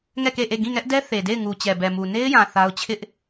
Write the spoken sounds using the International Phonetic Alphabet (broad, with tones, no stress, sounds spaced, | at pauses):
ŋ ɛ˦˨ k e˦˨ ʔ e˦˨ ɡ ĩ˦˨ ŋ ɛ˦ ʔ d ɛ˦ θ e˨ d e˦˨ ɪ̯ ŋ u˨ t͡ɕ ɛ˨ b ɛ˨ m u˨ n e˦ ɪ̯ j ã˨ θ a˦ ʊ̯ t͡ɕʰ ɪ˦ ʔ